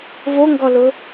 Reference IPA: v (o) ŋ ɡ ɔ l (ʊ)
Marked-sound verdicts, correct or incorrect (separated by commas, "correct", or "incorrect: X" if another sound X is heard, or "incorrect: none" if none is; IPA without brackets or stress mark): correct, correct